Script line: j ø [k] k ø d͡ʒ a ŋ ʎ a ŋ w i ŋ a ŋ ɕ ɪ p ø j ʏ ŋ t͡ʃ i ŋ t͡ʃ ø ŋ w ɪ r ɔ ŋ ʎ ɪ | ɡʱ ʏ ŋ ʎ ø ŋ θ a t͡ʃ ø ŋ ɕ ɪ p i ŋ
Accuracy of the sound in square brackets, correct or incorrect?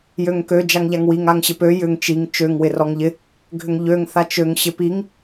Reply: incorrect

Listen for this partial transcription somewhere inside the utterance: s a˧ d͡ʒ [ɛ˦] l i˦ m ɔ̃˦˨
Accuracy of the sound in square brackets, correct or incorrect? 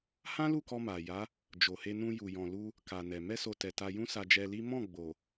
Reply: incorrect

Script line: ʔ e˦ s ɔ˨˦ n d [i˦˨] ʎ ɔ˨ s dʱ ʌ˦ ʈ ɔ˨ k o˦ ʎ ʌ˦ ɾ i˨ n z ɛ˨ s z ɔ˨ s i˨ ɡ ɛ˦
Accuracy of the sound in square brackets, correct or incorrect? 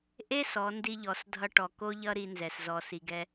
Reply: incorrect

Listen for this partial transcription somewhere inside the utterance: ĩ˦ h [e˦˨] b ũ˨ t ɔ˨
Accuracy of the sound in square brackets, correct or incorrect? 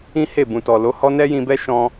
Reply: correct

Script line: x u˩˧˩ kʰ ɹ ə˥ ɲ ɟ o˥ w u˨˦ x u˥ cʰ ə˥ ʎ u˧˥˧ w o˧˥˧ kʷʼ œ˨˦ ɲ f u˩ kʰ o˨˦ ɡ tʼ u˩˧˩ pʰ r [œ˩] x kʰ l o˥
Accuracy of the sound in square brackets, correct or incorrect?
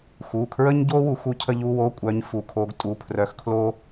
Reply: incorrect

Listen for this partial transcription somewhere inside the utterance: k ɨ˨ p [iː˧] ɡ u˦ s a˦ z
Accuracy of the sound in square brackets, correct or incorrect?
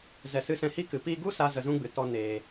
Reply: incorrect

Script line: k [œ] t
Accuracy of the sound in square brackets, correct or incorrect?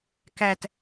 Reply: incorrect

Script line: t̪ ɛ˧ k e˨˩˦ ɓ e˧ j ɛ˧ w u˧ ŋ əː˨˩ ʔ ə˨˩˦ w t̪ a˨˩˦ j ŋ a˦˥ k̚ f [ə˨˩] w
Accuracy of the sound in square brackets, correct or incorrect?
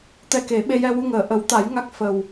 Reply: correct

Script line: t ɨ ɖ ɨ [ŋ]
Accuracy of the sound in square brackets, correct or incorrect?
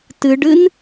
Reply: incorrect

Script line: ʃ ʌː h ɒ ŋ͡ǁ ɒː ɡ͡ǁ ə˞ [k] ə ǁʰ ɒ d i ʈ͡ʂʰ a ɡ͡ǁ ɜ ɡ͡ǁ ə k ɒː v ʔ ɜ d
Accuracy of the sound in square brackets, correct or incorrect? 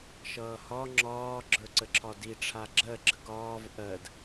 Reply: incorrect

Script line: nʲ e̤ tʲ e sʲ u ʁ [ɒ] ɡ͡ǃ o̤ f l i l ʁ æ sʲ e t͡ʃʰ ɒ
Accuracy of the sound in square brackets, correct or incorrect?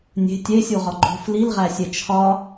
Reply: correct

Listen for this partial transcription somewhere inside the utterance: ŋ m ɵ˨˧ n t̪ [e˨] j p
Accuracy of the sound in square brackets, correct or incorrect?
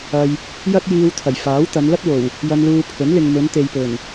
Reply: correct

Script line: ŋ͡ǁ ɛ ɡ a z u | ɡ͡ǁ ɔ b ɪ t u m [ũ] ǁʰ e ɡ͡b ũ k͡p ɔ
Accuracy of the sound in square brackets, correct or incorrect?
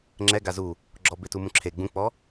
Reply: correct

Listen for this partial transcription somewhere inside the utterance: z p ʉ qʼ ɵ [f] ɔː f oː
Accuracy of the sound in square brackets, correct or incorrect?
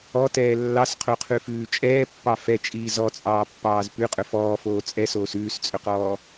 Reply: correct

